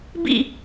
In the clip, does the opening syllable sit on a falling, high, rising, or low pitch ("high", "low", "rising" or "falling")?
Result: falling